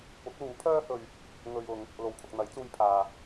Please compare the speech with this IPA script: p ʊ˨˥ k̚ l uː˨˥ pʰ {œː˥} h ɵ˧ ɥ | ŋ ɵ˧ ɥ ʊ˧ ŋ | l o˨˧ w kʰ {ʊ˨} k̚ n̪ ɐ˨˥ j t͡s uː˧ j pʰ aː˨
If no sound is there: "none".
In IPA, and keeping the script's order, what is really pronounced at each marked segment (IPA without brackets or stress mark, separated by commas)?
œː˥, ʊ˨